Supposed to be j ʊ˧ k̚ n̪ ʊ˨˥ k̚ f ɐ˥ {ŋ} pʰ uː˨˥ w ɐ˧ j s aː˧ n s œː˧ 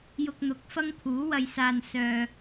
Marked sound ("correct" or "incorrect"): correct